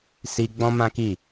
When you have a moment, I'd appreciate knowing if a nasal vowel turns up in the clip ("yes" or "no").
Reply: yes